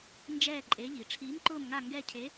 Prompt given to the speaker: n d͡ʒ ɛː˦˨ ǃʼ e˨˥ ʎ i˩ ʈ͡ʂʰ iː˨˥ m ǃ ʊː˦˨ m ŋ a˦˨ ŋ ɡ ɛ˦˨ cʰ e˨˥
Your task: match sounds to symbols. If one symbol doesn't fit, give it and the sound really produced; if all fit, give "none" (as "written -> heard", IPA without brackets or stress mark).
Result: none